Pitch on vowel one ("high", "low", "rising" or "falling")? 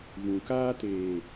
low